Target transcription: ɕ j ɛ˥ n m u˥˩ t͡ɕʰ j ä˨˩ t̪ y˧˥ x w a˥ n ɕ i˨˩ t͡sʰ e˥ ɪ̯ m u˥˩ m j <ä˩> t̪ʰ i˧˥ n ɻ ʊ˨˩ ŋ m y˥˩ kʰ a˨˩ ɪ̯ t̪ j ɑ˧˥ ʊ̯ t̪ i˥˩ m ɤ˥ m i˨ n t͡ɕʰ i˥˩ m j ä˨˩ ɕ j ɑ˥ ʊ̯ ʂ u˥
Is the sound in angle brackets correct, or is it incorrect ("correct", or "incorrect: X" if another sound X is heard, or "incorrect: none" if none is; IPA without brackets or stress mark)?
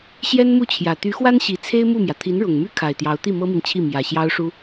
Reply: correct